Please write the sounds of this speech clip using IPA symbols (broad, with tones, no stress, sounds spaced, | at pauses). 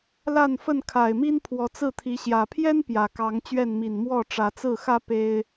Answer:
l a˥˨ n f ə˥˨ n kʰ a˨˩ ɪ̯ m i˦ n pʰ w ɔ˨˦ t͡s ɹ̩˥˨ t̪ʰ i˨˦ ɕ j ä˨˩ pʰ j ɛ˦ n p j ä˨˩ k ɑ˨˦ ŋ t͡ɕ ɥ ɛ˥˨ n m i˨˩ n m w ɔ˥˨ ʈ͡ʂ ä˨˦ t͡s ɹ̩˥˨ x ä˦ p e˦ ɪ̯